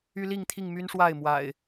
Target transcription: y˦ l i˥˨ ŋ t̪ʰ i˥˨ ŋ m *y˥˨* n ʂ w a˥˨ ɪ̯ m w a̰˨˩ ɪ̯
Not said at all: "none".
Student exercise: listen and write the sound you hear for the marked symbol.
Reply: y˦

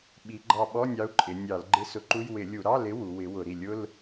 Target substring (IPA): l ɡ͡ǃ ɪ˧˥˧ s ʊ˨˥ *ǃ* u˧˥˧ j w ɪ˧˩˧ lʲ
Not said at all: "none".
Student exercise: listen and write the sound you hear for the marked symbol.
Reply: ǃ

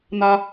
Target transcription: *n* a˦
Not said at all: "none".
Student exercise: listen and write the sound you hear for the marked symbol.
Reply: n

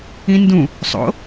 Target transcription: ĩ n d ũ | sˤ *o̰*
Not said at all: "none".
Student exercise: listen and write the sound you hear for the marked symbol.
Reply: o̰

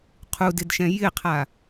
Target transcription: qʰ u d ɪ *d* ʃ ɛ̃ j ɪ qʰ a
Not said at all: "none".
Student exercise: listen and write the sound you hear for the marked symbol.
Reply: d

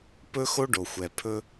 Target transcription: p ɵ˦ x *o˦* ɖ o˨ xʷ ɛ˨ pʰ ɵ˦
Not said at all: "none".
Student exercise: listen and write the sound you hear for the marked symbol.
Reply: o˦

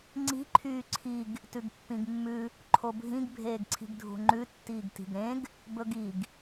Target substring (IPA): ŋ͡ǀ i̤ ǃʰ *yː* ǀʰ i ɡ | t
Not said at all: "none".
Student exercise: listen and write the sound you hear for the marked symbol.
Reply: yː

